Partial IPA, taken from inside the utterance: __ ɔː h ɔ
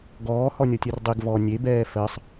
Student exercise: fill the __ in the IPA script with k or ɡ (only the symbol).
ɡ